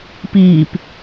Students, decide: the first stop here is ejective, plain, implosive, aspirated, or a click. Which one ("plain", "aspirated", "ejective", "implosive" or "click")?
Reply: plain